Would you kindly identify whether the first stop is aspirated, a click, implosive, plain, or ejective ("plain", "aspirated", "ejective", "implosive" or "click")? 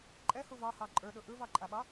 click